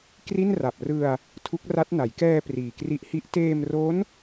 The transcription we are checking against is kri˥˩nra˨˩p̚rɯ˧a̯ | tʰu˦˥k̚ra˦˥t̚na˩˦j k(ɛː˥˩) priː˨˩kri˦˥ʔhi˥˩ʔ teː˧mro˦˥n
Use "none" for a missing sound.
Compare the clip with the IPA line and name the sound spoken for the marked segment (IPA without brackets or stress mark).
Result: ɛː˧